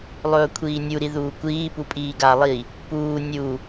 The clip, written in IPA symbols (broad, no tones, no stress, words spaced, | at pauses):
lˠɵːkʷʰiːnʲu ɾiðuːkʷiː pupʼiːɡa lˠi | puː nʲu